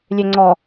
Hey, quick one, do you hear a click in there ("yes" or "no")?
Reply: yes